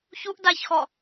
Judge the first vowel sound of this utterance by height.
high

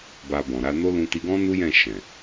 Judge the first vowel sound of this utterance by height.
low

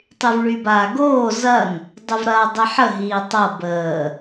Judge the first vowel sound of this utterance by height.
high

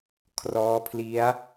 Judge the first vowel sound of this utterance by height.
mid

